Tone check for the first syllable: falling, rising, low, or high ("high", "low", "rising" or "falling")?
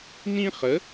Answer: high